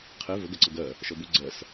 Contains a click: yes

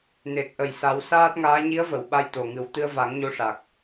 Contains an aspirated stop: no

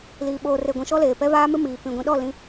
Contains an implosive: yes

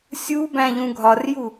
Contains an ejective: no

